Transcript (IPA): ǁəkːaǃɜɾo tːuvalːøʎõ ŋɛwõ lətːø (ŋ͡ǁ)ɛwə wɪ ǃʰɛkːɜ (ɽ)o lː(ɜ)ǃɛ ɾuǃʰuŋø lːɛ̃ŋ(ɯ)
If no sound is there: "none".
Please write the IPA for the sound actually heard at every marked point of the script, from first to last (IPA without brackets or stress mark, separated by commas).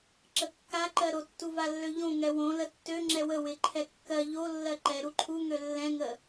ŋ͡ǁ, ʎ, ɜ, ə